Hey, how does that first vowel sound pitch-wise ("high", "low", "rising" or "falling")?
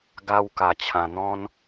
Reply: high